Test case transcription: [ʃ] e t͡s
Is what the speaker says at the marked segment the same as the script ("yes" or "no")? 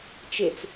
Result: no